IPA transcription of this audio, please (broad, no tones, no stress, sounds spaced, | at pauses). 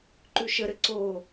ǃ ʉ ʃ ə ɾ ɘ ǀ o